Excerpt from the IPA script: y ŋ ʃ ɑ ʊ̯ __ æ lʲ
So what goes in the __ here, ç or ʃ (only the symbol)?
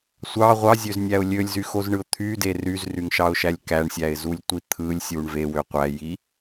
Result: ʃ